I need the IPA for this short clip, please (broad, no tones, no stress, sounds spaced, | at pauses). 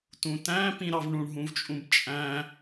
t ũ t æ̃ p ĩ ɾ ɑ v ɳ ũ ɳ ɦ ũ v t͡ʃʼ ũ b t͡ʃʼ æ̃